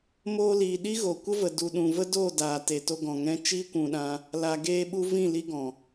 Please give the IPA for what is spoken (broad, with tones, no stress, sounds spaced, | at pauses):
m oː˧ l iː˨ ɗ i˦ ɣ o˨ kʷ ə˦ v ə˨ d u˨ ɗ ũ˨ v ə˦ d oː˦˨ d aː˨ t e˨ t o˧ ɡ ɔ̃˨ ŋ ɛ̃˧ t͡ʃ iː˦ kʷ ũ˨ ɗ ã˧ | l a˨ ɡ eː˧ ɓ u˧ v ĩ˦˨ l i˧ ɡ ɔ̃˨